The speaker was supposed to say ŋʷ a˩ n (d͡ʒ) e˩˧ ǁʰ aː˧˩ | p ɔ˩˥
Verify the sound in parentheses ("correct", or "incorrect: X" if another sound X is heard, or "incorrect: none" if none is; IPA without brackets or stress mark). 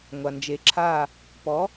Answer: correct